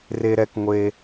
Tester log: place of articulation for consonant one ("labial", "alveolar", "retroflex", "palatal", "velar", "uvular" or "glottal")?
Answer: alveolar